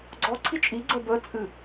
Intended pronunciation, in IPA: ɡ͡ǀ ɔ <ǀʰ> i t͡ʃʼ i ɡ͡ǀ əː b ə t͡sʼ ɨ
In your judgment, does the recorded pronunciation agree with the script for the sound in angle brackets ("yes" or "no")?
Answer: yes